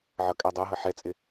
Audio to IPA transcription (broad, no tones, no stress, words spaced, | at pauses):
ʕʌkʼædˤæɦʌ ħɛt͡sʼɪ